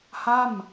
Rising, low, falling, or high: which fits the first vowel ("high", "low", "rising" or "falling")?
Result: falling